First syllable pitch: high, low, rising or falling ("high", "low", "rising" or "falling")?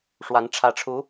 rising